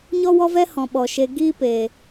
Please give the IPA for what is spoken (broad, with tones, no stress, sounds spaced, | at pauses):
ɲ ɔ˦ w ɔ˦ v ɛ˦ h ɔ̃˨ ɓ ɔ˨ ʃ e˧ ɡ iː˦ p eː˨